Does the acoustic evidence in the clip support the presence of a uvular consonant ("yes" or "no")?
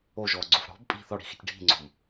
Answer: no